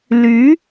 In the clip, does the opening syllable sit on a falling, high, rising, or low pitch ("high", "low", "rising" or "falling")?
rising